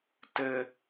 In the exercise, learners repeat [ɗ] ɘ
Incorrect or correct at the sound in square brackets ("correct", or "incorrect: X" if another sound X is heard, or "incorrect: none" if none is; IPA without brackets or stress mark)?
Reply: incorrect: t